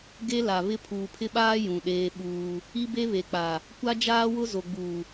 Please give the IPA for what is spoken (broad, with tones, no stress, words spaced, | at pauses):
ɡe˦la˨βɪ˦ pʰuː˨pʰɪ˦ɓaː˦ jũ˨ɗeː˦ɓuː˦ | i˦be˦ βe˨k͡pa˨ | kʷa˦ d͡ʒaː˦wʊ˦ zo˨ɡ͡buː˨